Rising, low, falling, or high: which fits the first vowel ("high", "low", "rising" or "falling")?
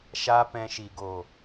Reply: high